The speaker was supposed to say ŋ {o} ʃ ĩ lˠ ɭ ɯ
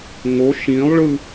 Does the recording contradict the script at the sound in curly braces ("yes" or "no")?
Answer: no